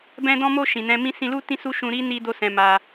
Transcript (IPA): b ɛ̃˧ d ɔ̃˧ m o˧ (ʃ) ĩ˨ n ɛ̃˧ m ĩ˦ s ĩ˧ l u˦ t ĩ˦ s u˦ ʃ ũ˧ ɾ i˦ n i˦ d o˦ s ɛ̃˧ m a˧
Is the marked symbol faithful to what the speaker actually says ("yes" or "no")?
yes